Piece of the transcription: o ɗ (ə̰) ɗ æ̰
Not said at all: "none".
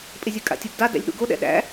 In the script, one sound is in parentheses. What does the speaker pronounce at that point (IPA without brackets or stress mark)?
ɛ̰